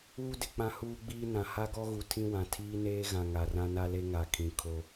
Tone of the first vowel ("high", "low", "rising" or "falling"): high